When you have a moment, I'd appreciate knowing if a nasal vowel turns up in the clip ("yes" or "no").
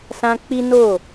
yes